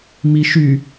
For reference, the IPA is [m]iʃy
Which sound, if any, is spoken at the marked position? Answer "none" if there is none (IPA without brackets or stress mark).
m